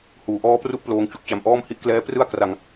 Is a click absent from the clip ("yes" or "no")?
yes